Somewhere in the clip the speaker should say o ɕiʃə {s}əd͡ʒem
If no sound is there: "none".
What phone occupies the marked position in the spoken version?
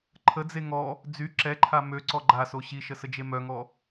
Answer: s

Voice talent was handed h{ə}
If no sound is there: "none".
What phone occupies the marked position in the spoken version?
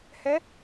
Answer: ɛ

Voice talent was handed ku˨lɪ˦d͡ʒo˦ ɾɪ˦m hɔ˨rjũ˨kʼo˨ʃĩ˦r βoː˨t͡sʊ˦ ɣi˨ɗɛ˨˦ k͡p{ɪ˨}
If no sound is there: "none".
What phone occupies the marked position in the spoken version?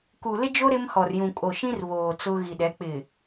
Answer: ɪ˨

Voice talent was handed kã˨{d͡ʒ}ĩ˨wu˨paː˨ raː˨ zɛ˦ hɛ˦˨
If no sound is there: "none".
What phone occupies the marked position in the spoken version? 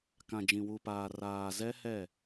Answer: d͡ʒ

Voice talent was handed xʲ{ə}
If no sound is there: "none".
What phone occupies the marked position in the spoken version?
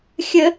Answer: ə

